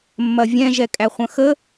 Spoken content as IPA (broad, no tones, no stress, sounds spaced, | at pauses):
mː ɐ vʲ ɛ̃ ʒ ɛ kʼ æ χʷ ɐ̃ x ə